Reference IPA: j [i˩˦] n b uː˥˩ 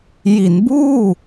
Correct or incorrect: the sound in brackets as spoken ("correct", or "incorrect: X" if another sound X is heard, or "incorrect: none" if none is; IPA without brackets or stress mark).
correct